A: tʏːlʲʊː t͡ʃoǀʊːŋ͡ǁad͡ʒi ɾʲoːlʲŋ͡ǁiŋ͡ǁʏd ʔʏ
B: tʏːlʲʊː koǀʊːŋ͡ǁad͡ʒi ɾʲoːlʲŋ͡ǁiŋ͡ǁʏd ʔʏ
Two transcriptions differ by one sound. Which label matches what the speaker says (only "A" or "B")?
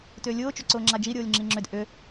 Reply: A